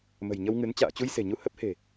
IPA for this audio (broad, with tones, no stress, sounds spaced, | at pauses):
m ə̤˨˩ j ɲ ə˧ w ŋ ɨ˨˦ n t͡ɕ a̰ː˧˨ t͡ɕ u˧ j s e̤˨˩ ɲ u˧ h ə˦˥ p̚ h e̤˨˩